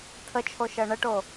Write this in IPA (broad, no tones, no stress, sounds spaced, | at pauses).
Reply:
tʰ ə t͡ʃʰ o ʃ ɜ ɳ ə ʈ o